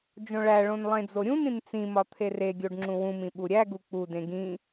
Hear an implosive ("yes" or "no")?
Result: yes